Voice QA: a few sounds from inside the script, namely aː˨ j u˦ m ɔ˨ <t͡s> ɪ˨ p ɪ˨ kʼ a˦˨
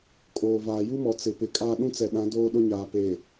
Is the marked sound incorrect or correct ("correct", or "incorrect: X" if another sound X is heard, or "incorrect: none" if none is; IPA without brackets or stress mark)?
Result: correct